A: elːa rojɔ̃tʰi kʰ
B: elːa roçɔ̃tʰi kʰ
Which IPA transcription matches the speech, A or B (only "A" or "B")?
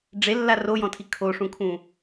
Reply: A